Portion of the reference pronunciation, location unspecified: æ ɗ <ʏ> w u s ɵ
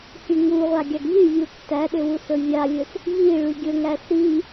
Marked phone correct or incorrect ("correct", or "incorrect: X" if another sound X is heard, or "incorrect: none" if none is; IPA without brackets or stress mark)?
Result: correct